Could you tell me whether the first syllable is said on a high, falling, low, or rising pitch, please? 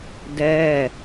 falling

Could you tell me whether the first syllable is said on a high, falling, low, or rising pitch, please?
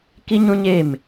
high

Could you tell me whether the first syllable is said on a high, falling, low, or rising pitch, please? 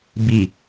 low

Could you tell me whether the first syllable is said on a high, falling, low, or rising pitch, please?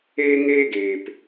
high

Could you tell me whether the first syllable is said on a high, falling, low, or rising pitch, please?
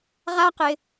high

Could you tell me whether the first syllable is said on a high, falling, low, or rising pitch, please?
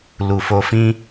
low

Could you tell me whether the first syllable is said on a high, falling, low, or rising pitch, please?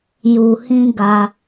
low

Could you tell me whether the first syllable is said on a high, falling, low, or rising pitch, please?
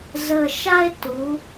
low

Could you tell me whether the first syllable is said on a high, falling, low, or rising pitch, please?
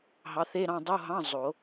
rising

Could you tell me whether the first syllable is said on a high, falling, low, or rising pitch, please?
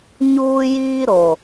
high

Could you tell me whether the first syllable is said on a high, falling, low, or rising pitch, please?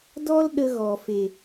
high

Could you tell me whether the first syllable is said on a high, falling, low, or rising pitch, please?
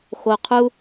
low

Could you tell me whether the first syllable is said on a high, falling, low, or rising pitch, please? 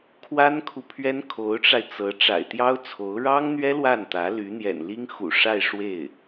high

